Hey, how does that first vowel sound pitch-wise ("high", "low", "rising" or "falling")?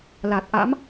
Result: low